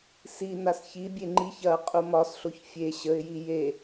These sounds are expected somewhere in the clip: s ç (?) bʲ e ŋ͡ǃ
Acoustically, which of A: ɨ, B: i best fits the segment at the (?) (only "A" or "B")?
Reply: B